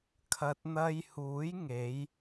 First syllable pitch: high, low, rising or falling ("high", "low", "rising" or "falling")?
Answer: low